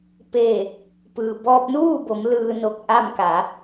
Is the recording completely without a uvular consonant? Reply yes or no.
yes